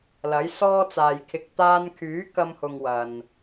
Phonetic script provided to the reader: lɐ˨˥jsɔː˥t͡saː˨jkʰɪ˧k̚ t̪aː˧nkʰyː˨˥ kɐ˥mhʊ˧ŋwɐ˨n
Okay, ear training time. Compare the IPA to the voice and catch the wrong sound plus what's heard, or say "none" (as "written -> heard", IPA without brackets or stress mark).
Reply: none